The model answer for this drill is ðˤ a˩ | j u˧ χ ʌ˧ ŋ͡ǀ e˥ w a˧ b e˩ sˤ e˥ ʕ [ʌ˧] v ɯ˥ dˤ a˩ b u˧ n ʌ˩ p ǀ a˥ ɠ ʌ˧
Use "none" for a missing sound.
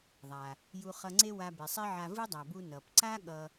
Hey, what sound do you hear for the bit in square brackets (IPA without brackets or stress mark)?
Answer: a˧